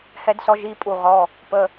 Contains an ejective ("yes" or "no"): yes